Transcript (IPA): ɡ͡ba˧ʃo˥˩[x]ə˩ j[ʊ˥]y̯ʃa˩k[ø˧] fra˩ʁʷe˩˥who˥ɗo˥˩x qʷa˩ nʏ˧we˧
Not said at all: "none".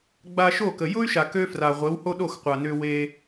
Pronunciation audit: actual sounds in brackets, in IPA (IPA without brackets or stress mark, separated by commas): k, ʊ˥, ø˧